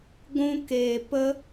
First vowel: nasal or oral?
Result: nasal